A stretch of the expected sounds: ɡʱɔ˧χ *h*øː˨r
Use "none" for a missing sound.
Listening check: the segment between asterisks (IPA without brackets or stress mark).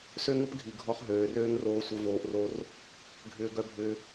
ɦ